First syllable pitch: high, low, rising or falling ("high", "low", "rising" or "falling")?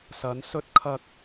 rising